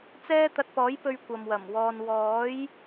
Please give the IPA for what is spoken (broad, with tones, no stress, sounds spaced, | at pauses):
t͡s ɛː˥ t̪ ɐ˧ t̚ p ɔː˨˥ j p ɵ˧ ɥ kʷ ɐ˨ m w ɐ˨˩ m w ɔː˧ n w ɔː˨˥ j